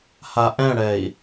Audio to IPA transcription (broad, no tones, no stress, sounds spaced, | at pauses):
h a ʔ ɛ̃ ɽ ɛ i̯